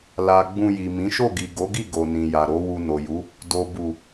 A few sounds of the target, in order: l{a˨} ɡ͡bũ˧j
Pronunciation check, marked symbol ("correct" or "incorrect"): correct